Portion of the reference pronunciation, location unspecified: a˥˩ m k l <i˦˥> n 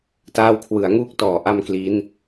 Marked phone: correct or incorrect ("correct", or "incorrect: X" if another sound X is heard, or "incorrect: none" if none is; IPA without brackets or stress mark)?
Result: correct